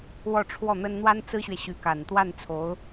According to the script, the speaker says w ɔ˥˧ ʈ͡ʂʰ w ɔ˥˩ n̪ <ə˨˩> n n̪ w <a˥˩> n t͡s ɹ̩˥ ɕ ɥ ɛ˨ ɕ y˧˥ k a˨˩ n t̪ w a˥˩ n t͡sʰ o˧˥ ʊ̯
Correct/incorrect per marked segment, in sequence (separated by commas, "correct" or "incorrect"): incorrect, incorrect